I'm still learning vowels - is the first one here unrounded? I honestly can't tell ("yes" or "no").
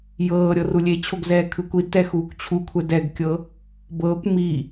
yes